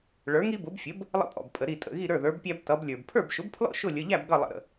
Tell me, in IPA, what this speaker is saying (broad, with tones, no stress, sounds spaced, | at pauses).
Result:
ɭ ə˞˩˥ ŋ i˦ b ʊ˩˥ b fʲ ə˩˥ b | lˠ ə̰˦ pʼ ɔ̰˩ b pʼ ə˩ ɾ i˧˩ tʼ ə̰˩˧˩ ɣ i˥˩ ɾ ə˞˥˩ ð ə˞˩˥ b pʲ æ˦ b t ʌ˩˥ b lʲ ə˞˩ b pʰ ə˞˥˩ b ʃ ʊ˩˥ b pʰ l ɔ̰˥˩ ʃ ʊ˥˩ lʲ ə˩˧˩ ʎ æ˥˩ b ɡ ʌ˥˩ lˠ ə̰˧˩ ɾ ə̰˩